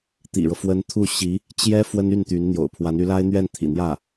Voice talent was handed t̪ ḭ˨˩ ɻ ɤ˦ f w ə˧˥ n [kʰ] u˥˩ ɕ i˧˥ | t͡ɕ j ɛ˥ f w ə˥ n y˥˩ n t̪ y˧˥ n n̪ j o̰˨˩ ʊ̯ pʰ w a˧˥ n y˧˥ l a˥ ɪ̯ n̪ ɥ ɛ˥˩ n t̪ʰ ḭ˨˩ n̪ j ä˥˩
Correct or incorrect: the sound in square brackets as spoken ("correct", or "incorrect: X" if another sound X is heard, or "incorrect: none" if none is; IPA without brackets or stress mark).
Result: incorrect: t̪ʰ